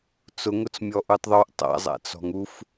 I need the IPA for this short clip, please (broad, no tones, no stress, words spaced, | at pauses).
t͡sʊŋʊt͡smʲɔʔutˤ ðˤuʔ tˤa̰zˤa̰t͡sɔ̤ŋ uf